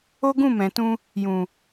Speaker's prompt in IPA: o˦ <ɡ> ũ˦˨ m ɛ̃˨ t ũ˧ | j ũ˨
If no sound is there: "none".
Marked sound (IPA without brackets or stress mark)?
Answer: ɡ